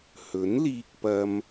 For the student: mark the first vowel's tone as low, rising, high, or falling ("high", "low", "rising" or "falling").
rising